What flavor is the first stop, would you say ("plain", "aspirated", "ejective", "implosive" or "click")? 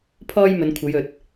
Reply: aspirated